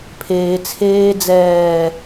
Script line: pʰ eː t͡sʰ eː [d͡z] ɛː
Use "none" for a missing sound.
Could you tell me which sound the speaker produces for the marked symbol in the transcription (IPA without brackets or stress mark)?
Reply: d͡z